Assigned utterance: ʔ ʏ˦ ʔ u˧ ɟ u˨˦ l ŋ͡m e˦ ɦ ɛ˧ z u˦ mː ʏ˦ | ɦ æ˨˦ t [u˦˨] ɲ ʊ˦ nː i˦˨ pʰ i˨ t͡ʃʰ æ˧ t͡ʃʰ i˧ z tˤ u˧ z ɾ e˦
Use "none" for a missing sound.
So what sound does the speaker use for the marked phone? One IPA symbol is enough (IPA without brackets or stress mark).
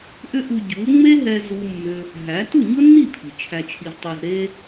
u˦˨